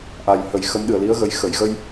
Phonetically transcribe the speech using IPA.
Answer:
ʔ a˨˩ j h ə˨˩˦ j x ə˧˥ m ɗ ɨ˨˩ ə̯ l i˧˥ ə̯ ɣ ə˨˩ j x ə˨˩˨ j ɣ ə˧ j

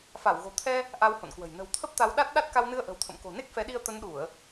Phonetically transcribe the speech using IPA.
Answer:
f a˧˩ w ɣ o̤˨˩ t̪ʰ ɛ˧ | ʔ a˧ w h o̰˧˨ n k w ə̤˨˩ j n ə̤˨˩ w t̪ʰ ə˦˥ p̚ t̪ a˨˦ w ɗ a˦˥ t̚ ɗ a˦˥ t̚ k a˧ w n ɨ˧ ə̯ ʔ ə̤˨˩ w t̪ʰ ə̰˧˨ m k o̤˨˩ n e˦˥ k̚ f ɛ˨˦ ɗ i˧ ə̯ t̪ ə˨˦ n ɗ u˧˩˨ ə̯

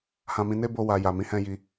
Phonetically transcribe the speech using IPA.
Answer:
h ã˧ m ĩ˧ n e˦ b o˧ w a˧ j a˨ m ĩ˨˦ h ɛ̃˧ j i˧

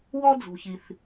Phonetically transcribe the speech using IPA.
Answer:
w ɔ˥ d͡z ṳ˩ ç i˩ θ

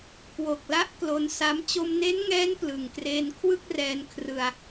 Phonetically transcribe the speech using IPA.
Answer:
k w o˨˩ k̚ l a˦˥ ʔ k l o˧ n s a˦˥ m t͡ɕ o˧ m n e˦˥ n ŋ ɛː˦˥ n p l ɯ˨˩ ŋ k r eː˧ n kʰ w ɯ˥˩ k̚ r ɛː˧ n kʰ r ɯ˧ a̯

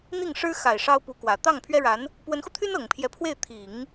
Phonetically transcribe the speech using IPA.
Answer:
n̪ i˥˩ ŋ ʂ ɻ̩˥ x a˨˩ ɪ̯ ʂ ɑ˥ ʊ̯ p u˧˥ k w ä˨˩ t̪ ɑ˥˩ ŋ pʰ ɥ ɛ˥ ɻ a˧˥ n | p w ə˧˥ n x u˧ t̪ʰ y˥ n ɤ˨˩ ŋ pʰ j ɛ˧˥ pʰ w e˥˩ ɪ̯ t̪ʰ i˨˩˦ ŋ

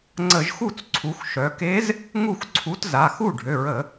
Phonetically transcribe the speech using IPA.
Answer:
ŋ͡ǀ ə˧˩˧ ʒ x u˥˩ t͡s ǀʰ u˩˧ x ʃ œ˩˧ k e˧˥ z | ŋ u˥˩ x ǀʰ u˧˥ t z a˩˧˩ x u˥˩ ɖʱ ø˩˧˩ ɹ ə˧˩˧

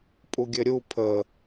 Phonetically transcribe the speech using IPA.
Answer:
pʼ u ɡʲ ɘ ɾʲ u pʰ ə

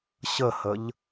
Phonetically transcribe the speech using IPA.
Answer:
ɕ ə h ə ʎ

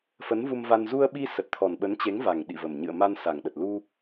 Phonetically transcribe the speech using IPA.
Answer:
f ə˨˦ n v u˧ m v a˧ n z u˧ ə̯ ɓ i˧ s ə˨˩ t̚ t̪ʰ ɔ˨˩ n ɓ ə˨˦ n t͡ɕ e˨˦ ŋ v a˨˩ ŋ ɗ ḭ˧˨ v ə˨˩ m ɲ ɨ̰˧˨ ə̯ m a˧ n s a˨˩ ŋ ɗ ə˨˩ t̚ l u˧

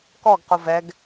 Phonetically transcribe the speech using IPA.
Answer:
k ɔ ɡ q o v ɛ ɡ

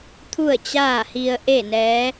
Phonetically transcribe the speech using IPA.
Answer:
t̪ʰ u˥˨ ə̯ t͡ɕ aː˥˨ h i˧ ə̯ ʔ e˥˨ n ɛː˧˥

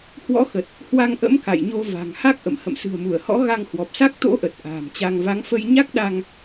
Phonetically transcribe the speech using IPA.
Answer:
h w ɔ̰˧˥ x ə˨˩ t̚ | h w a˧ ŋ ʔ ə̰˧˥ m k a̰˧˨ j ɲ o˧ v a̤˨˩ ŋ h a˦˥ k̚ ʔ ə̰˧˨ m h ə̰˧˨ m s ɨ̤˨˩ ə̯ m u˧˩ ə̯ h ɔ̰˧˥ ɣ a˧ ŋ h w ɔ˨˩ p̚ s a˦˥ k̚ t̪ o̰˧˥ ʔ ə˨˩ t̚ ʔ a̤ː˨˩ m t͡ɕ a˧ ŋ v a˨˦ ŋ f ə˧ j ɲ a˦˥ k̚ ɗ a˧ ŋ

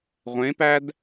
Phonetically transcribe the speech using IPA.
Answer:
ʁʷ ẽ p æ d

